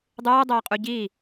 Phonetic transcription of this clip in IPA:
dˤ ɨː dˤ ɛː qʼ u ɟ i

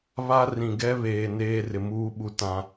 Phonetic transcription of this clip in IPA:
β a˦ r ĩ˨ ɡ ɛ˦ β eː˨ n eː˦ r ɪ˨ m uː˦ ɓ u˨ t ã˨

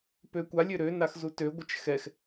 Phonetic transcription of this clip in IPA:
p ø kʷ a lʲ ø ɾ ø n a x z u t ø ɡʷ ə t͡ʃ x ɛ x

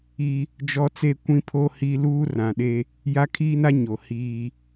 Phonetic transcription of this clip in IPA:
i˦ | d͡ʒ ɔ˦ t͡s e˦ kʷ ĩ˦ pʰ o˦ h i˦ l uː˦ r ã˨ ɗ e˦ | j a˦ kʰ iː˦ n a˦ ɲ o˨ h iː˦

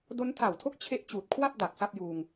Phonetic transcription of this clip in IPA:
d o˦˥ n tʰ a˨˩ w tʰ o˥˩ k̚ t͡ɕʰ e˥˩ ʔ t͡ɕ uː˨˩ t̚ kʰ w a˥˩ p̚ d a˨˩ k̚ s a˥˩ p̚ j uː˧ ŋ

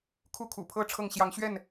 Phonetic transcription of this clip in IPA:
kʰ u˥˨ kʰ ṵ˨˩ pʰ ɤ˥˨ ʈ͡ʂʰ ɤ˥˨ ŋ ɕ j ɑ˨˦ ŋ ɕ ɥ ɛ˥˨ n

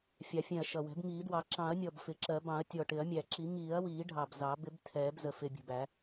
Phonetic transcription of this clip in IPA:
fʲ ɑ˨˩˦ fʲ ɛ̃˨˩ ɐ̯ ʃ ʌ˨˩ w ɛ̤˨˩˦ b ŋ iː˨˩˦ d w ɑ˨˩˦ ǁ ɑ̃˨˩˦ ɐ̯ nʲ ɔ˨˩ b f ɪ˨˩˦ ǁ ɜ˨˩˦ b ɑ̃˨˩˦ ɐ̯ tʲ ɔ˨˩ ʈ ɪ˨˩˦ ɐ̯ mʲ æ˨˩ ǁ i˨˩˦ ŋ iː˨˩˦ ɐ̯ w iː˨˩˦ ɖʱ ɑ˨˩ b z ɑ˨˩˦ b ɪ˨˩˦ b tʰ ɛː˨˩˦ b z ə˨˩ f ɪ˨˩ bʲ ə̤˨˩ b æ˨˩˦

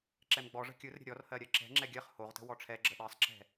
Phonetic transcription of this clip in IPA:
ǁ ɛ m ɡ͡b ɔ ʐ ə̤ kʲ ɯ r ɾʲ ə̤ ɾʲ ɔ r h ɜ ɾʲ ɜ ǁ ɛ̤ ŋ͡ǁ ɛ ɡʲ ɜ χ h o ʁ t ə̤ w ɔ ʈ͡ʂʰ ɛ ɡ͡ǁ ə ɗ ɜ sˤ ǁ ɛ̤

